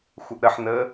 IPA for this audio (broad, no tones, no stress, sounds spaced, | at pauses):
xʷ ə ʔ ɾ ə ħ n ə